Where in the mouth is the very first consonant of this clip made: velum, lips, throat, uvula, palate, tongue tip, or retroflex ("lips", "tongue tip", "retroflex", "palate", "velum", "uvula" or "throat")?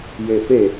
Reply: palate